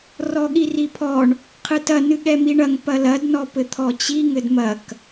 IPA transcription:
r ɔ ɠ i r i pʰ ɔ ɳ | qʰ ɨ t ɐ n ɨ ɠ ɛ m i ɳ ɐ ŋ p ɐ l ɐ d n ɔ p ɘ t̪ʰ ɔ t͡ɕ i ŋ ɘ d m ɐ k

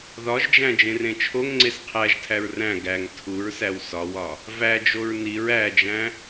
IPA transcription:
ð ɒ ʒ d͡ʒ æ̃ d͡ʒ ẽ r ẽ t͡ʃʰ o ŋ ŋ͡ǀ e s qʰ æ ʒ tʰ æ ɹ r æ̃ ɡ æ ŋ tʰ u ɹ s æ w s ɒ w ɒ | v æ d͡ʒ o ɹ n i ɹ æ d͡ʒ æ̃

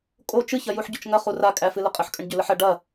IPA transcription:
kʼ o t͡ʃ ɨ ç ɐ j u ħ ɟ o t͡ʃ ŋ ɐ χ u r a kʼ æ f ɨ l ə qʼ ə ħ kʼ ə ɳ ɟ ʏ l ə ħ ɐ ɖ ɐ

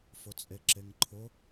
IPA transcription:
f ʊ t͡sʼ e ǁ e ŋ ǃʰ ʊ

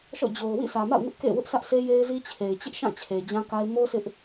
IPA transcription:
ʃ ɔ̰˦˨ d͡ʑ o˨ ʊ̯ w ḭ˦˨ sʰ ä˨ m a̰˦˨ ʊ̯ ŋ ʊ˦ ʔ k ḛ˦˨ w ʊ˦ ʔ sʰ ä˦ ʔ s e˦ j e˦ ɪ̯ z i˦ t͡ɕʰ e˨ ɪ̯ t͡ɕ ɪ˦ ʔ ʃ ã˦˨ t͡ɕʰ e˨ d͡ʑ ã˦ k a˦ ɪ̯ m o˦ s ɪ˦ ʔ

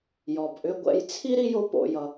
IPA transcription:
j ɔ˩ b ʔ ʏ˧ ɡʷ ɛ̰˧ j t͡sʰ i˥ ɾ i˥ j o˥ p o̰˧ j ʌ˧

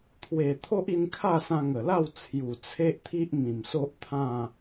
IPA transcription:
t̪ʰ w e˨˩ t̪ʰ o˦ ʔ i˧ n kʰ a˥˧ s ã˧ ŋ ə˨˩ l a˥˧ w t͡sʰ j u˨˩ t͡sʰ e˦ ʔ t̪ʰ i˦ ʔ m ĩ˨˩ m s o˦ ʔ t̪ʰ ã˥˧

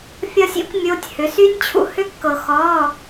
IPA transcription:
fʲ ɒ˥ sʲ ḭ˥ kʷ mʲ o˧˥˧ tʲ h ʏ˨˥ s y˥ nʲ t͡ɕʰ ṵ˥ h ʏ˥ kː ɤ˧ x ɔ˧˥˧

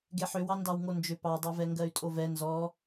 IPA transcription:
ɡ e ħ ʏ w ɑ n d ɑ w ŋ o n d͡ʒ ʏ p ɑ dˤ ɑ v ɛ ŋ ɡ ɜ y̯ tʼ o v ɛ n z ɔ

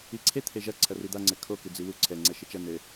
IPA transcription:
i ǀʰ e t̪ʰ e ʒ ɐ ǀʰ ɐ r i d̪ a ŋ͡ǀ ɘ kʰ o k ɨ d͡z i w u ǀʰ ɛ ŋ͡ǀ ɛ ʃ ɘ t͡ʃ ɐ n ɘ

